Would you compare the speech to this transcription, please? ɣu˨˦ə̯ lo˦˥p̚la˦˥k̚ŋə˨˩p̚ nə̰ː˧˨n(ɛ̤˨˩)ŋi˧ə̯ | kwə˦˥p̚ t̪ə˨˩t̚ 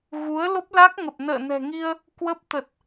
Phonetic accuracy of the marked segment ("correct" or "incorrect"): correct